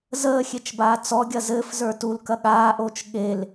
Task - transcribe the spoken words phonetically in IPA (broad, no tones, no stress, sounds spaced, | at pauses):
z əː xʲ e t͡ʃ b aː t͡s ɔ ɡʲ ɐ z ɘː f z ə˞ t u l k ɐ ɠ aː ʔ oː t͡ʃ ɠ e l